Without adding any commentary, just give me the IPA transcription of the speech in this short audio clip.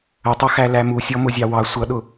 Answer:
ətˤʌ xælæmusʲɔ mʊzʲɑwɑ sʷʌɗʊ

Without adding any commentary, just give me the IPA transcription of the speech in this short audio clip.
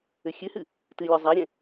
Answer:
ɘxʲɨhɨ | tɨlʲɔ zˤaɾʲɛ̃

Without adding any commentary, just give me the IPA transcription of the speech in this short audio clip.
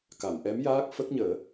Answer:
ka˨˩˨mʔɛ˧˥mjaː˦˥k̚ fə˦˥k̚ɲəː˨˩˦

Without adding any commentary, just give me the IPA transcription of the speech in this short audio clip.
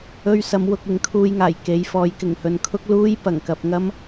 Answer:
ɵ˧ɥsɐ˨˧mwʊ˨k̚ ɪ˨˧ŋkʰuː˧jŋaː˨˩j ke˨˧jfɔː˨˧jkɪ˨˩ŋhɵ˨n kʰʊ˥k̚ luː˥j pɐ˨˩ŋkɐ˨p̚ ŋɐ˥m

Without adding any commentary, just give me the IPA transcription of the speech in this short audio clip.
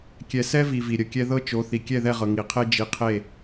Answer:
kʲɛ˨sɛ˦vi˨ vi˨ɾʲə˦˨kʲɛ˦ ðɤ˦t͡ʃo˨˦ θi˨ kʲɛ˦˨ðɛ˦˨ʁɤ˨ ŋi˨qʰe˦ d͡ʒi˨qʰe˦˨

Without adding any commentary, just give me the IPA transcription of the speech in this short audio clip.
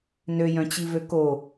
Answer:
nøjœ̃t͡ɕivø ko

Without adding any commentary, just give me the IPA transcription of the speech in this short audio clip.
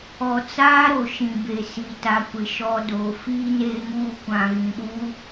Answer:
ɔ˨t͡saː˦ɾo˨ʃĩ˨ be˨si˨ta˨kʷɪ˨ ʃɔ˨doː˨ fiː˨neː˨ŋuː˨ kʷã˨ɣĩ˨ɗuː˦

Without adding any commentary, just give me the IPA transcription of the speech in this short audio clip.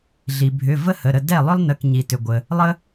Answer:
ɮi˩ bʱʏ˩˧˩ və˥hə˩˧˩ɾə˥˩ dɛ˥˩lˠʏ˥lˠnə˩˧˩k ɲi˩tʏ˩ɡʷə˩ | lˠə˥

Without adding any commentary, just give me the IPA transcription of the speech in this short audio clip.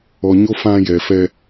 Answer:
ɔ˨ɲo˦ fã˦ jɛ˨fɛ˦

